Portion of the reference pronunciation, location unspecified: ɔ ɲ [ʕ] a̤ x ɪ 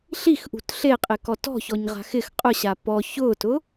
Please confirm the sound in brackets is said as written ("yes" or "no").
no